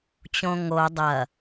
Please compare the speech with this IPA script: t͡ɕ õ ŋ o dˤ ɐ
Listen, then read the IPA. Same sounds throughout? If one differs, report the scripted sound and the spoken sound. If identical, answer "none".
none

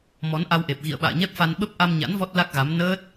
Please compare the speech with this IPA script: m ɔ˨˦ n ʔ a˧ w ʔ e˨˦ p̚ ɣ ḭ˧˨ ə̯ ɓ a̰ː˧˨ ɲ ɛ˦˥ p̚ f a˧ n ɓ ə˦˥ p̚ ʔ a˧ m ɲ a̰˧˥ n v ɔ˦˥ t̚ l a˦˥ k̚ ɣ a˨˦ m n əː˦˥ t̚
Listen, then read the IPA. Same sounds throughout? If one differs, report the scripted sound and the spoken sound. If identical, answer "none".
e˨˦ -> e˨˩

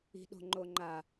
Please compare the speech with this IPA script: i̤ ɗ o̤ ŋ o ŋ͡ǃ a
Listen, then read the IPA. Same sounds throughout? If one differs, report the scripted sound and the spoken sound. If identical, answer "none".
ŋ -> ŋ͡ǃ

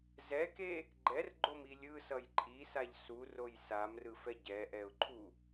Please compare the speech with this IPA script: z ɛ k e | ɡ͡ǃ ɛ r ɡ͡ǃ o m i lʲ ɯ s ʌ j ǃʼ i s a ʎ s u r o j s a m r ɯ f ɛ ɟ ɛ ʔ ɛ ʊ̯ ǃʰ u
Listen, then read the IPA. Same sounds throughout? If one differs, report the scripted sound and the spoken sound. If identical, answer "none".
none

